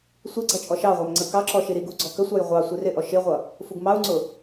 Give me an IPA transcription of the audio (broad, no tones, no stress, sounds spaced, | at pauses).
sʷ ɪ ɡ͡ǀ ʌ t͡ʃʼ ɔ ʃ ɑ ʁʷ æ m ŋ͡ǀ ə k ɑ ǁ ɔ ʃ i ɾ i ɡ u ɡ͡ǀ ɔ k ə sʷ ɑ j ʁʷ ɑ sʷ i r ɪ ʔ ɔ ʃ ɪ ʁʷ ʌ | f u ɡ m ɑ u̯ ŋ͡ǀ ʊ